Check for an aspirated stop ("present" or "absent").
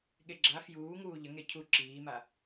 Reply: present